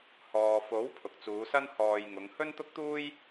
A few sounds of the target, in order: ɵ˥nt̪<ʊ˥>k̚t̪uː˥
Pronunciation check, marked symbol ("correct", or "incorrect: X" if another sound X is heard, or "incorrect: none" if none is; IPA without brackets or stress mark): correct